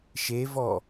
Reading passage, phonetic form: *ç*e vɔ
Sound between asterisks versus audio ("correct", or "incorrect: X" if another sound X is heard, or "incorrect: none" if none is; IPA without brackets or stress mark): incorrect: ʃ